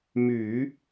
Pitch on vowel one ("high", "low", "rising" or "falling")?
low